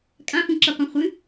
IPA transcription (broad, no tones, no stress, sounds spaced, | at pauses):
kʼ ã f ũ ǁ ɛ qʷ ɛ̃ χʷ ɨ